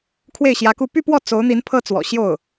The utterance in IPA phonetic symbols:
kʰ w e˥˩ ɪ̯ ɕ j ä˧˥ k u˥˧ p y˥˧ p w ɔ˥˩ t͡s o˧˥ ʊ̯ n̪ i˧˥ n pʰ ɤ˥˩ t͡s w ɔ̰˨˩ ɕ j o˥˩ ʊ̯

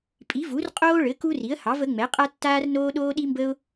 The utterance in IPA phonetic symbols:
pʼ i˩˥ v u˩˥ r qʼ oː˦ ɭ ɘ˩˥ k u˦ r i˩˥ ə̯ h ɑ˩˥ v ə˩˥ ŋ͡m ɛ˩˥ qʼ a˦ tː aː˦ r n oː˦ ɗ oː˦ ɗ i˦ m b ə˦ ʊ̯

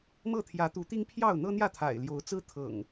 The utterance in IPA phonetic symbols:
m ɤ˥˨ t̪ʰ j ä˨˦ t̪ u˨˦ t̪ i˦ ŋ pʰ j ɑ˥˨ ʊ̯ n̪ ɤ˦ n̪ j ä˥˨ t̪ʰ a̰˨˩ ɪ̯ l j o˨˦ ʊ̯ t͡s ɹ̩˦ t̪ʰ ɤ̰˨˩ ŋ

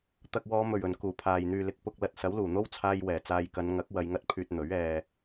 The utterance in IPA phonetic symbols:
t̪ ɐ˧ k̚ w ɔː˨˧ m ɵ˨˩ ɥ ɵ˨˩ n k uː˨˩ pʰ aː˨ j n̪ yː˨ l ɪ˨˥ k̚ p ʊ˧ k̚ l ɐ˧ t̚ s ɐ˨˥ w l uː˨˩ n̪ o˥ w t͡sʰ aː˧ j w ɛː˨˩ t͡s aː˨ j k ɐ˨˧ n ŋ ɐ˨˥ k̚ w ɐ˧ j ŋ ɐ˥ t̚ pʰ yː˧ t̚ n̪ ɵ˨˥ ɥ ɛː˨

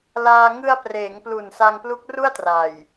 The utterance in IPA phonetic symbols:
l aː˧ ŋ ɯ˧ a̯ p r eː˩˦ ŋ p l u˨˩ n s a˧ ŋ p l u˦˥ k̚ r u˥˩ a̯ t r a˨˩ j

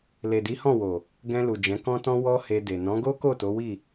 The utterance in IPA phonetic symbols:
l e˨ d i˨˦ h ɔ̃˦˨ w o˨ | ɡ ɛ̃˧ l u˨ d͡ʒ ɛ̃˨˦ k ɔ̃˦ t ɔ̃˦ w ɔ˦ h e˧ d e˨ n ɔ̃˨˦ ɡ o˦ k o˦˨ t o˨˦ w i˦˨

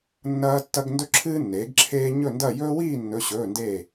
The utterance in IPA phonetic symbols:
nː ɐː˦ tː ɐ˦ ɡ n d ɵ˦ ǁʰ ɨː˦ nː eː˩˥ ɡ ǁʰ eː˦ ɲ ɵ˥˨ n d ɐ˥˨ j ɵː˦ w iː˥˨ nː ɵ˩˧˩ ɕ ɵː˩˧˩ n d eː˥˨

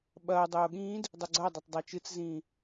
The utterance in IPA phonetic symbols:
ɓ ɐː dˤ oː ɠ ĩː d | dˤ ɵ ɡ͡ǀ ɐ dˤ ɐ tˤ dˤ a t͡ʃ ɨ t͡s z ĩː

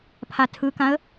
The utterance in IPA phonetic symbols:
pʰ a tʰ ɯ k ã ə̯

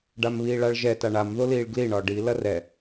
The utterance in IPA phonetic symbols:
ɖ a m β iː ɭ a ɭ ʒ ɛ t a ɳ a m ð o l iː ɭ ɡ l i ɳ ɒ ɖ i l ɐ r ɛ

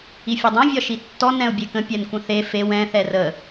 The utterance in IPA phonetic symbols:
i fʲ ɛ dˤ ɛ̃ vʲ ɒ ʃ i tː ɔ n ɛ̃ ʊ̯ bʲ e k ə̃ pʲ ɛ n kʷ ə̃ θ e f e w ɛ̃ θ ɛ r ə

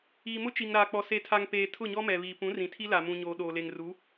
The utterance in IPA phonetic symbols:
iː˨ m ʊ˦ t͡ʃ i˨ ŋ ɾ aː˨ k͡p ɔ˨ s e˨ tʰ a˨ ŋ p eː˨ tʰ ʊ˦˨ ɲ ɔ˦ m ɛ˨ β iː˨ p ũ˨˦ r ĩ˨ tʰ i˦ l a˨ m ũ˨ ɲ oː˨ ɗ oː˨ l e˨ ŋ r u˨˦

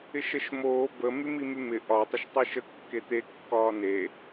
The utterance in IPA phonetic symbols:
ɪ ʃ ə ʃ m oː b ə m y m i m y m ɪ ʔ ɒ tˤ ɪ ʃ tˤ ɪ ʃ ə kː e t̪ e kː ɒː n e

